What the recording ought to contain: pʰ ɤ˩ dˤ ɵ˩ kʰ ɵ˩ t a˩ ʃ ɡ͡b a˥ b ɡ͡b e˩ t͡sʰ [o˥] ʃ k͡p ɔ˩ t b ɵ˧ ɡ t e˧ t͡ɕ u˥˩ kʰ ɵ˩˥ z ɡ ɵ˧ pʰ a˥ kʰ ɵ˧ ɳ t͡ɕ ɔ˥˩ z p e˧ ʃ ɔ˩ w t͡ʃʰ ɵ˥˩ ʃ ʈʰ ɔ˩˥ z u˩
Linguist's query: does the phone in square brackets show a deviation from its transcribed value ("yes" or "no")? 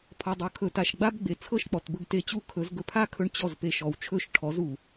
yes